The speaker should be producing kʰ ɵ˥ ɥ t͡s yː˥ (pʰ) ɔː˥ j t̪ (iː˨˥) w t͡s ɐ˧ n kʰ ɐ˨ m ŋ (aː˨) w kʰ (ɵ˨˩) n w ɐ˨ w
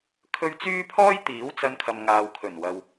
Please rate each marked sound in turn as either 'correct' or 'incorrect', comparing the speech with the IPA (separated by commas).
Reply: correct, correct, correct, correct